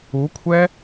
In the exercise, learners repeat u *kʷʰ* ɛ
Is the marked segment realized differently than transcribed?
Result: no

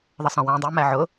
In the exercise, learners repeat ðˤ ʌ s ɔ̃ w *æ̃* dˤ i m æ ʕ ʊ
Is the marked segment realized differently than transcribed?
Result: no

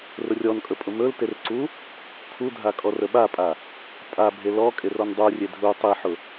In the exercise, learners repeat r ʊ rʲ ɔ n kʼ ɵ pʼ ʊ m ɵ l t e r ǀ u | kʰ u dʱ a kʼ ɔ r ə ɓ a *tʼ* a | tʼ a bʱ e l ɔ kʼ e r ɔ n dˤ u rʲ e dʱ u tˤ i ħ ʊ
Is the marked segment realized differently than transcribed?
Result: yes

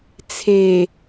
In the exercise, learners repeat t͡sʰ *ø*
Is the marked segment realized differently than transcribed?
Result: yes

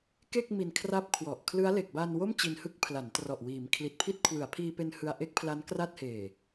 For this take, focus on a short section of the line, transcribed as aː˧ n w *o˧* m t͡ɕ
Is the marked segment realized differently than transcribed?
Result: yes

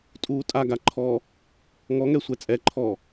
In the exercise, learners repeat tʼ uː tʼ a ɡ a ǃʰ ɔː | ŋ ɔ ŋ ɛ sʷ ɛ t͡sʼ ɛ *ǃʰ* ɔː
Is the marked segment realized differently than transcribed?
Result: no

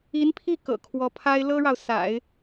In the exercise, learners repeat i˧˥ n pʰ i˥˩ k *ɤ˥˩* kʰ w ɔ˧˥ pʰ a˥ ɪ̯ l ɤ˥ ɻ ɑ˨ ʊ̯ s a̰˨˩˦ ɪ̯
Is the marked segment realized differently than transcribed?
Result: yes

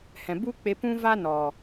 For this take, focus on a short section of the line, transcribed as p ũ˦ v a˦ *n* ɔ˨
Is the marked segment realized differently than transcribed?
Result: no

